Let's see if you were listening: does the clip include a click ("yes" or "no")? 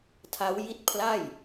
no